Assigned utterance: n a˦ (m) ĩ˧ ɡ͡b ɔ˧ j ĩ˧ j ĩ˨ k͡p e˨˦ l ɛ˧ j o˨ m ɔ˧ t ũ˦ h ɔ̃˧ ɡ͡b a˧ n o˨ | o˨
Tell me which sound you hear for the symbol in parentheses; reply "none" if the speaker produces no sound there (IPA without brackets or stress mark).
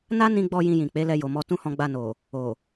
n